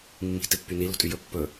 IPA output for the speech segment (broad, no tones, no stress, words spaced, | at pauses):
mːi̤ tɪpːyni lo̤tʼyjɵ pːɵ